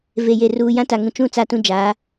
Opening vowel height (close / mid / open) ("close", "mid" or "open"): mid